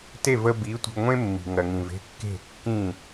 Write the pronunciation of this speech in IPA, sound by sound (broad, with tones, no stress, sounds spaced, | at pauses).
t e˥˩ v ə˧ b i˩˥ tʷ ə̤˧ ɡ ŋʷ ẽ˥ mː i̤˩ ŋ ɜ˩ ŋ ĩ˩ v e̤˥˩ kː e̤˥˩ kː ĩ˥˩